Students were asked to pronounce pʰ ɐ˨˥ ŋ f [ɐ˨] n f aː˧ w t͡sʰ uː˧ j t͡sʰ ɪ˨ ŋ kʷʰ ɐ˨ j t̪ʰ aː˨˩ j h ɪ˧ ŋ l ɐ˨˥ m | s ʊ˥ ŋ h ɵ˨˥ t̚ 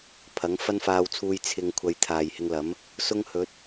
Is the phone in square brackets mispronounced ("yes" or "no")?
yes